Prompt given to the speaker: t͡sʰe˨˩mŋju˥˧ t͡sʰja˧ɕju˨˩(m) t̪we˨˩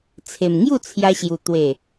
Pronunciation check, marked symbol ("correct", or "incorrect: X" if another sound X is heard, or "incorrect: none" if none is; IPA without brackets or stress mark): incorrect: none